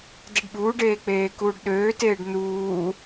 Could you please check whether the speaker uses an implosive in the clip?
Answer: yes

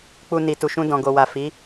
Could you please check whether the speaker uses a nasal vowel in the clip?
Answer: yes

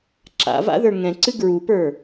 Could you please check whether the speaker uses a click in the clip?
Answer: yes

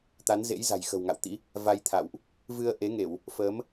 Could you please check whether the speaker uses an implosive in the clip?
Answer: no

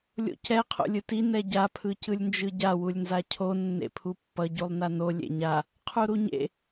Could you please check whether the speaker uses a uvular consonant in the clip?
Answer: yes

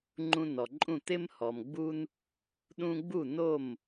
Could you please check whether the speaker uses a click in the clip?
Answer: yes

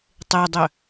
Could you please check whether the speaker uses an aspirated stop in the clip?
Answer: no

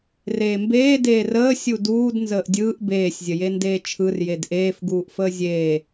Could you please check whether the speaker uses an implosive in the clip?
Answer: no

